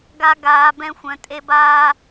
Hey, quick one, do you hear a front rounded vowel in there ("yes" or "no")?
yes